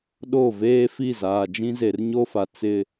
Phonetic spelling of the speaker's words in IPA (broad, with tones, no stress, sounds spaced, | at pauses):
ɗ o˦˨ v eː˦ f i˦˨ z aː˨ d͡ʒ ĩ˦ z e˨ r ɲ o˦ f a˨ t͡s ɪ˦